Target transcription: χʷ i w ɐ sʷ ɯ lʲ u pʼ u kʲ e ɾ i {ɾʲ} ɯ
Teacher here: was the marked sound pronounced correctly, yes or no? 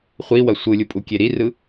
no